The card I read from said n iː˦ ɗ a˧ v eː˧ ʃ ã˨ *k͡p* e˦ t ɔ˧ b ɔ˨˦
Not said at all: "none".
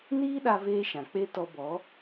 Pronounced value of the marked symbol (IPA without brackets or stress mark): k͡p